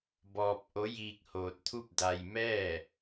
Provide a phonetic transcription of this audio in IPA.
b ɔː˧ p̚ ʔ o˧˥ j iː˧ k̚ h oː˧ t̚ t̪ʰ u˥˨ p̚ d a˧ j m ɛː˥˨

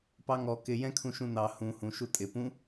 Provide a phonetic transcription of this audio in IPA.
p ɑ ŋ ɔ k ɪ j ɛ̃ kʰ ũ ʃ ũ n ɑ h ũ h ũ ʃ u tʼ ɪ p ũ

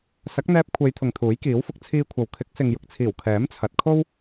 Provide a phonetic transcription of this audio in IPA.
s ɐ˨˥ k̚ n̪ ɛː˧ p̚ kʷʰ e˨˧ j t̪ʰ ʊ˨ ŋ t̪ʰ uː˨˥ j k iː˨˥ w f ʊ˧ k̚ t͡sʰ iː˧ kʷʰ ɐ˨ w kʰ ɪ˨˥ k̚ s ɪ˨ ŋ j ʊ˨ k̚ t͡sʰ iː˨˩ w kʰ ɛː˨˥ m t͡sʰ ɐ˨ t̚ kʰ o˥ w

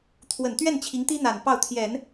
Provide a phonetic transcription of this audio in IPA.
t̪ʰ w ə˨˩ n t̪ ɥ ɛ˥˩ n t͡ɕʰ i˧˥ ŋ t̪ i˥ n̪ a˨˩ n p ɑ˥˩ ʊ̯ t̪ʰ j ɛ˨˩˦ n

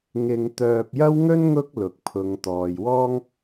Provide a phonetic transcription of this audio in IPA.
ŋ ɪ˨ ŋ t̪ œː˧ p̚ j ɐ˥ w ŋ ɵ˥ n ŋ ʊ˥ k̚ l ʊ˨ k̚ pʰ ʊ˨˧ ŋ t̪ ɔː˨ j w ɔː˥ ŋ

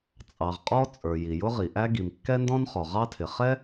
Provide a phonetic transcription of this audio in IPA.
t͡sʼ ɑ˨ ʁ qʼ ɔ˥ t͡sʼ ə˞˨ j i˨ j ʊ˥ ʁ i˨ ʔ æ˥ ɡ i˨ m kː ɛ˥ n d ɔ̃˥ n χ ɔ˨ ʁ ɑ˥ tʰ ɪ˨ χ ɛ˥

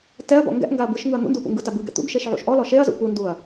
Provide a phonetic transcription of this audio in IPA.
t ɛ ɐ̯ b ɔ̰ ŋ ɡ ɛ̰ ʔ ŋ ɡ a ɐ̯ b ɯ ʃ ŋ ɯ ɐ̯ n̪ ṵ n d u p ṵ ŋ ɡ ɯ t a b ɯ ɡ ɛ̰ t̪ ṵ ɡ ʃ e ʃ ʕ ṵ ʃ ʔ ɔ l ɔ ʃ e ɐ̯ z ṵ p u n d u ɐ̯

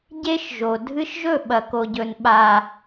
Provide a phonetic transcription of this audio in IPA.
ɟ e˦ ʃ ʒ o˨ dʱ ɨ˧ ʃ ʒ ɵ˦˨ ɓ ɐ˨ k o˨ ɟ ɵ˨ n ɓ a˨

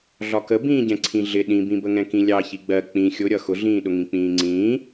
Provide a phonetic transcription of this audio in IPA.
ɮ ɒ k ə b ĩː ɟ ɛ̃ ǀʰ ĩ ɮ ɪ ɗ ĩ b ĩ b ə ŋ ɛ̃ k ĩ lʲ ɑ ç i ɡ͡b ɜ k͡p ĩ xʲ ʊ ɾʲ ʌ x ʊ ɮ ĩː ɗ ʊ ŋ ĩ k͡p ĩː ŋ͡ǀ ĩː

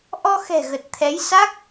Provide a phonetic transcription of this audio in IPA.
ʔ ɔ˧ x ɛ̤˨˩ ɣ ə˨˩ t̚ t̪ʰ ɛ˨˦ j s a˦˥ k̚

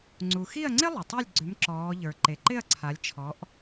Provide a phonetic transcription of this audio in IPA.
ŋ͡ǀ u˩ x i˥˩ ɐ̯ ŋ͡ǀ ɪ˥ lˠ ɪ˩ tˤ i˥˩ lʲ ɡ͡ǀ ʏ˨˥ m ǁ ɔː˩˧ ʎ ə˞˩ ǃ e˩ ǃ ɪ˥˩ ɐ̯ ǀʰ a˩˧ lʲ t͡ʃʰ ɔ˩˧ ʔ

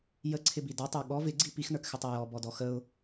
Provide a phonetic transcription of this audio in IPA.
j ə ǀʰ ɪ b i d ɔ tˤ ə˞ ɠ ɔ v ɪ ɡ͡ǀ i p i x n ə˞ k x ɪ tˤ ɛ j ɔ b ɔ d ɔ x ə ʊ̯

